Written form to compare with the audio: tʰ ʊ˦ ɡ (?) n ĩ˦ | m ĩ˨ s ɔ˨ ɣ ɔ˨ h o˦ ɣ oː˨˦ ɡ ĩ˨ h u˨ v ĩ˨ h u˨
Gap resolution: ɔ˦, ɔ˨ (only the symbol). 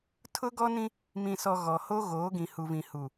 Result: ɔ˦